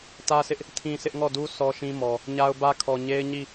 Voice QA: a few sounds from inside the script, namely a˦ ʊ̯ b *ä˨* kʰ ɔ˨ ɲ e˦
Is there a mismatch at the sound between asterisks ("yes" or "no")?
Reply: yes